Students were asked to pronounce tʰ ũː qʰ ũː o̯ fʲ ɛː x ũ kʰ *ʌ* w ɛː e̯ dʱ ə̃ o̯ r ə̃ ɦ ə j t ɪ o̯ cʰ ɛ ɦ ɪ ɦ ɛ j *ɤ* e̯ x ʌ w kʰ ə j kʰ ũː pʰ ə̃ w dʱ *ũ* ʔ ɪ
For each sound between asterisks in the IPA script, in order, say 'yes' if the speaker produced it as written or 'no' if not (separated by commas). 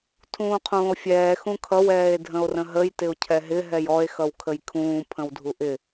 yes, no, no